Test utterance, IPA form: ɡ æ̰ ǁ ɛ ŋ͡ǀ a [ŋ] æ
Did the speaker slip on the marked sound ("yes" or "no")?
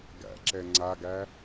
yes